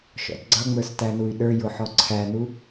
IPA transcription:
ʃɔ̰dɡ͡ǀʌŋ͡mə˞s tænuy̯ɗə˞ jʊħɔǀʰænu

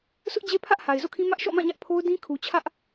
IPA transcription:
sʊ˦ʔd͡ʑe˦pʰä˦ʔ ha˨ɪ̯zo̰˦˨kʰĩ˦ mä˦ʔʃɔ̰˦˨mã˦˨ɲä˦ʔ pʰo˦ʊ̯dĩ˦kʰu˨t͡ɕʰä˦ʔ

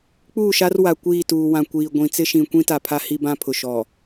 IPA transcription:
k͡puː˦˨ʃa˦rwa˨ kʷiː˦˨tuː˨ wã˨kʷiː˨ ɡʷĩ˨t͡sɪ˦ʃĩ˨kʷĩ˦ ta˨pʰa˦ hi˦bã˦pʰʊ˨ ʃɔ˨

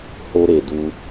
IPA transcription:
ho˧ ɾe˨ du˧

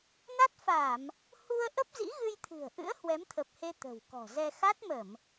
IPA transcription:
na˦˥t̚fa˧˩˨m | hu˧ə̯ ʔə˦˥p̚zḭ˧˥ɣɨ˧jt̪ʰɨ̤˨˩ə̯ ʔɨ̰˧˥ə̯ hwɛ˨˦mt̪ʰə˨˩p̚he˧ t̪ə̤˨˩w kɔ̤˨˩zɛ˧ xa˦˥t̚mə˧˩˨m

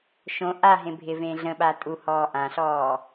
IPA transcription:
ʃõ ʔaɦẽ bʱɪvẽ ɮə̃ɓa tʼuhɔː ʔãɬɔː

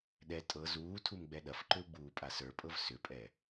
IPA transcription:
ɗɛ tʼɤ zuːtʰum ɡ͡bɛɗɐfǃʏu̯ ɡ͡buːpʼasə˞pʼɤv sʏpʼɛ

